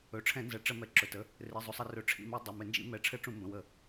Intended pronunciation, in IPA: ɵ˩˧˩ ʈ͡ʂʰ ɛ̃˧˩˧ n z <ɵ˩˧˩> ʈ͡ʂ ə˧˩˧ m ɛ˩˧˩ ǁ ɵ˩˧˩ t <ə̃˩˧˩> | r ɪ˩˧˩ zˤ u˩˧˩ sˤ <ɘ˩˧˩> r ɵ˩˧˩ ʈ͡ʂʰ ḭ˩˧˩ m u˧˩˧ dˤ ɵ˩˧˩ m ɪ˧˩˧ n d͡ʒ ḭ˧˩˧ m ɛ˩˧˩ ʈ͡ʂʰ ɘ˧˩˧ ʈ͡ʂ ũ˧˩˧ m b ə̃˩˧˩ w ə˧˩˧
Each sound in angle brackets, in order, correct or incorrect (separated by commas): incorrect, incorrect, incorrect